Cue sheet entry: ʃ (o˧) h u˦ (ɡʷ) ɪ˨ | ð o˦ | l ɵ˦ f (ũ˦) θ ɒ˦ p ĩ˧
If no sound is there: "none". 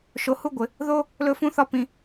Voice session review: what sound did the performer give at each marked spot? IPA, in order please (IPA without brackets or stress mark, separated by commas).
o˧, ɡʷ, ũ˦